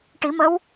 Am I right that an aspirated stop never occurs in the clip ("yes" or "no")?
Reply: yes